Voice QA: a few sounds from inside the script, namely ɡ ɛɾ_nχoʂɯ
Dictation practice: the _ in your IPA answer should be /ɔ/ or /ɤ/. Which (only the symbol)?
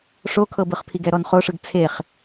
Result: ɔ